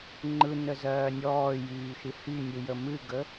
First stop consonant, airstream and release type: click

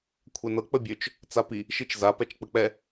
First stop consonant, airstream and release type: aspirated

